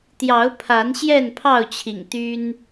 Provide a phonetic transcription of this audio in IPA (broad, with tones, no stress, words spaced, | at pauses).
t̪jɑ˨˦ʊ̯pʰa˨˦n ɕjɛ˥˨npʰɑ˥˨ʊ̯t͡ɕʰḭ˨˩ŋ t̪y˦n